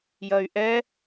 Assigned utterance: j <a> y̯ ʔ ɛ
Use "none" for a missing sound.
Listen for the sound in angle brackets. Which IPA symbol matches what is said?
ɐ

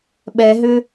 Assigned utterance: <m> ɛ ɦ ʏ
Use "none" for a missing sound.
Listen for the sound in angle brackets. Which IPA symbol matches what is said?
ɓ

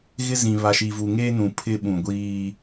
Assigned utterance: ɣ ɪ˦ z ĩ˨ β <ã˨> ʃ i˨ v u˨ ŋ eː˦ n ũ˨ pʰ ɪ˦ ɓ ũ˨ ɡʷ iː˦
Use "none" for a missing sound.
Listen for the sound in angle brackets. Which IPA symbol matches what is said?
a˨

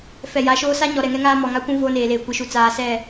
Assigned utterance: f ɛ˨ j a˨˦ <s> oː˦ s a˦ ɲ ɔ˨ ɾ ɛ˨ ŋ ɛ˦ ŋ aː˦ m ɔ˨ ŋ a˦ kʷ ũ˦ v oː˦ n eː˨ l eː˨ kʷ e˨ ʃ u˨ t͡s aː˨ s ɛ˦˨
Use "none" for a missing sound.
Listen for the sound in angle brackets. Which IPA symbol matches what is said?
ʃ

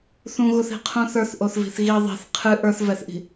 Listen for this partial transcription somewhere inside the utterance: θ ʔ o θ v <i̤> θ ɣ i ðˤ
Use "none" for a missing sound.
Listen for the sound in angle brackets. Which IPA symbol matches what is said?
i̤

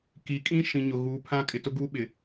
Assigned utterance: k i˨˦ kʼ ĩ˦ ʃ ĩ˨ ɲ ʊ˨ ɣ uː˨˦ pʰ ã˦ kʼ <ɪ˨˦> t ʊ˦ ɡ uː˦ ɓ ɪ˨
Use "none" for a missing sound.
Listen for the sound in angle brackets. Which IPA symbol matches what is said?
ɪ˨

